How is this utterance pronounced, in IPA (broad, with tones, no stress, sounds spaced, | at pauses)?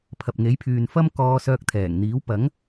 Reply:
pʰ ɐ˨ p̚ ŋ e˨˥ j pʰ yː˨ n f ɐ˥ m k ɔː˧ s œː˧ k̚ t̪ʰ ɛː˨˩ ŋ n̪ iː˨˥ w p ɐ˨˥ ŋ